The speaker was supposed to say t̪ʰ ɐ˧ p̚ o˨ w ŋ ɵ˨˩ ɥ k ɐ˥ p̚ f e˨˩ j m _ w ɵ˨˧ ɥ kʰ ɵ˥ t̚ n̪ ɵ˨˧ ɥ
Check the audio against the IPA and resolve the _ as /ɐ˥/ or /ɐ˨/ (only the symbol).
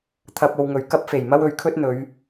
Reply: ɐ˥